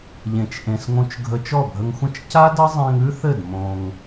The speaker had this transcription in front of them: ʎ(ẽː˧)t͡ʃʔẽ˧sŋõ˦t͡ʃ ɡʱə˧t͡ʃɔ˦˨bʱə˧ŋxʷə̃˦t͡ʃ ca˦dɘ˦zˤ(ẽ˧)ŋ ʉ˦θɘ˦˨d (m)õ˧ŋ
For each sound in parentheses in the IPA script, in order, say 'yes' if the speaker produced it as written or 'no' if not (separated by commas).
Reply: no, yes, yes